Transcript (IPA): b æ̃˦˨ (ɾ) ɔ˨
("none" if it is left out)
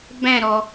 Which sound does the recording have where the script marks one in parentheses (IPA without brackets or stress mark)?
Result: ɾ